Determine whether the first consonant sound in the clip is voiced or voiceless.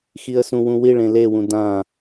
voiceless